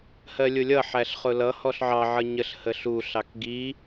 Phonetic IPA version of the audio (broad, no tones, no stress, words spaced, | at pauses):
hɜlʲʊlʲʌ ħæɬχʊlʌ hɔɬʕɑ ʕʌɲəɬ həɬu ɬɑkɡi